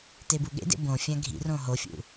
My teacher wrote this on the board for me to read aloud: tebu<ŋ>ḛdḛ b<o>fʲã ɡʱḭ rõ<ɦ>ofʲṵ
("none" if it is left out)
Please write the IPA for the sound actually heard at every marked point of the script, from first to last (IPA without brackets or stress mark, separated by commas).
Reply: ɠ, õ, ɦ